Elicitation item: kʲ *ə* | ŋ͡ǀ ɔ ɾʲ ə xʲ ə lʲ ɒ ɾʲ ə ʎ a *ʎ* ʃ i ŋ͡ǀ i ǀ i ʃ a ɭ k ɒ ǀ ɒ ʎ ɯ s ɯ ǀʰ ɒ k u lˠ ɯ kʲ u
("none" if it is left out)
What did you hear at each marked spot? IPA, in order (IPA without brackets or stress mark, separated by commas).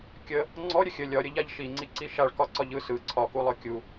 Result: ə, ʎ